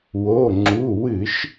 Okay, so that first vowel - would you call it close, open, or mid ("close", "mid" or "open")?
mid